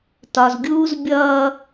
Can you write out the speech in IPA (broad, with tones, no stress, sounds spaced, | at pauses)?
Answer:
t ɒ˨ z ɡʲ uː˦ z bʲ ʌː˦